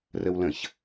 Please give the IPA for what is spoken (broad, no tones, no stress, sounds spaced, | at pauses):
r ə w l ə̃ ç